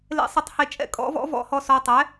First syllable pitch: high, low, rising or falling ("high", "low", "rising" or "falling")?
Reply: rising